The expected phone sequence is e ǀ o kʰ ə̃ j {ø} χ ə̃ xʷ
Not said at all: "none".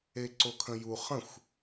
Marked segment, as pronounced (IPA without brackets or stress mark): u